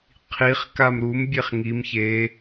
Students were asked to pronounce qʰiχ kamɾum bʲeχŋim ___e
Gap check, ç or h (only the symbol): ç